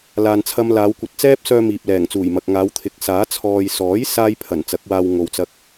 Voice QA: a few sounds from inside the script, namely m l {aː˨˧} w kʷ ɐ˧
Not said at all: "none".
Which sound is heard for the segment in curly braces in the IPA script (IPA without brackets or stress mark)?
aː˨˧